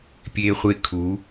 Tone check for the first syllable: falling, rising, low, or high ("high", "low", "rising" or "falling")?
high